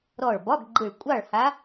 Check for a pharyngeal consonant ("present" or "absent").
absent